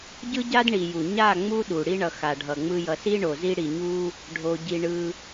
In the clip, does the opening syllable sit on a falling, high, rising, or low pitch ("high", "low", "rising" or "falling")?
high